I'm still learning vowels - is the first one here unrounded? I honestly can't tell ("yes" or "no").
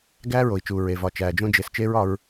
yes